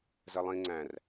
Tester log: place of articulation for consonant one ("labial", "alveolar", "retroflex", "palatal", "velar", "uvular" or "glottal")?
alveolar